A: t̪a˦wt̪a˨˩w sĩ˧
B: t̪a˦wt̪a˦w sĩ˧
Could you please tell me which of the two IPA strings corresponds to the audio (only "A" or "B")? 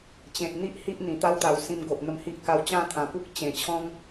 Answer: A